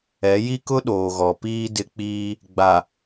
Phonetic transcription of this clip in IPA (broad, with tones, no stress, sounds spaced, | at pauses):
ɛ˨˦ j i˦ k ʊ˦ ɗ oː˨ ɣ ɔ˨ p iː˦ d ɪ˦ k͡p iː˦ | ɡ͡b a˨